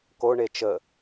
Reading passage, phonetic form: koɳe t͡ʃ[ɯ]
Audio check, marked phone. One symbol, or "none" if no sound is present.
ə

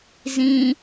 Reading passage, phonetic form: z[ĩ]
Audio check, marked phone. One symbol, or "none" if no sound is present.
ĩ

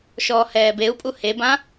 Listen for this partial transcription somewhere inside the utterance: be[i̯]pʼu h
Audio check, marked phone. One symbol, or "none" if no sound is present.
u̯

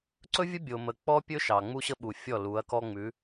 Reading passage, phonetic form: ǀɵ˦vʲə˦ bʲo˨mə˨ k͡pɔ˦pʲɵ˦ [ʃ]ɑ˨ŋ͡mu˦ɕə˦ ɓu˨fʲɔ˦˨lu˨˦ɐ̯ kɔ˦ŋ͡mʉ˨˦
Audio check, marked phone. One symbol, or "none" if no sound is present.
ʃ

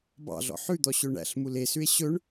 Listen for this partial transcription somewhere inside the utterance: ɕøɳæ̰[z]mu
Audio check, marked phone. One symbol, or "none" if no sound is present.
ɬ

